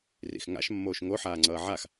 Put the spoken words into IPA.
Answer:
r ḭ x ŋ a̰ ʃ mː oː ʃ ŋ o ħ aː ŋ͡ǀ ʌː ʕ a x

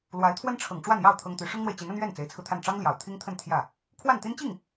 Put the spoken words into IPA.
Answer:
l w a˧˥ ɪ̯ t̪ʰ w ə˥ n ʈ͡ʂʰ ɤ˨˩ ŋ ʈ͡ʂ w a˥˧ n j ɑ˥˩ ʊ̯ t̪ʰ ɤ˥ ŋ t̪ y˧˥ ʂ ʊ˥ ŋ n̪ w e˨ ɪ̯ t͡ɕ i˧˥ n ə˥ n ɥ ɛ˥˩ n t͡s e˧˥ ɪ̯ t͡sʰ ɹ̩˧ t̪ʰ a˥˩ n ʈ͡ʂ ɑ˥ ŋ l j ɑ˨˩ ʊ̯ t̪ʰ i˥ ŋ t̪ʰ ə˥˧ n t̪ʰ j ä˥˩ | kʰ w a˥˩ n t̪ i˥ n t͡ɕ i˥˩ ŋ

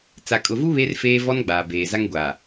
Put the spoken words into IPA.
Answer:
t͡s a˨ kʼ ʊ˨ v u˦ β e˦ r f eː˦ v ɔ˦ n ɡ͡b aː˨ b eː˨ z a˦ ŋ ɡʷ a˨

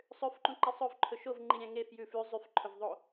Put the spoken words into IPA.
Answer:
sˤ ø f ǃ ũ ǃ ɛ sˤ ɵ v ǃʰ ɵ ʃ o v ŋ͡ǃ i ɾʲ æ̃ ŋ e f j ʉ f ʉ zˤ y f ǃʰ ɵ v ðˤ o

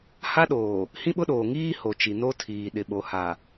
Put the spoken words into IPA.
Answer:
h a˦ ɗ oː˨ | h ĩ˦ ɓ ʊ˦ ɗ oː˨ ŋ iː˦ h o˨ t͡ʃ i˨ n o˦ tʰ iː˨ ɗ ɪ˨ ɓ o˨ h a˨

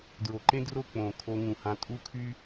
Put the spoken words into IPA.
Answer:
d ɹ o˨ ǃ ẽ˦ d r o˦˨ k͡p õ˨ kʰ o˧ ŋ ũ˨ h ã˧ tʼ u˦ kʰ y˦

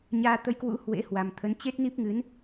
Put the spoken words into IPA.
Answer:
ɲ aː˧ t̪ ə˧ j k w ṵ˧˥ h w ḛ˧˥ h w a˨˩ m t̪ʰ ə˨˦ n t͡ɕ e˦˥ t̚ n i˦˥ p̚ ŋ ɨ˨˦ n

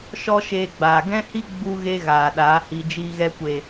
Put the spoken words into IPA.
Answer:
ʃ ɔ˦ ʃ eː˧ ɡ͡b aː˨ ɡ ɛ̃˦ h i˦ ɡ͡b u˦ ɣ e˦ ɣ aː˨ ɗ aː˨˦ h i˧ d͡ʒ iː˧ ɣ ɛ˧ kʷ e˨

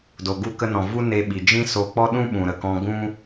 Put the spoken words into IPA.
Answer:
d o˨ ɡ u˧ k ə˧ n ɔ̃˨ v u˦ n e˧ ɓ i˨ d͡ʒ ĩ˦ s o˧ k͡p ɔ˦ ɗ ũ˦ ɓ ũ˨ ɾ ə˨ k ɔ̃˧ ɡ ũ˦

